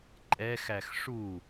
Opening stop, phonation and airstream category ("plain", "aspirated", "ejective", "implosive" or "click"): click